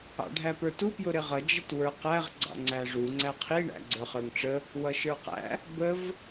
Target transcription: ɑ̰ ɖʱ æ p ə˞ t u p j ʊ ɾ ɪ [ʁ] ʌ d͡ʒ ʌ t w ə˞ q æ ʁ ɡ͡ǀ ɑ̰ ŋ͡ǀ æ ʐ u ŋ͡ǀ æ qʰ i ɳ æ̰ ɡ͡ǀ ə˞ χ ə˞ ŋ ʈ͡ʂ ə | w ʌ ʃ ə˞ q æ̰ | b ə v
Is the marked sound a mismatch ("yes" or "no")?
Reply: no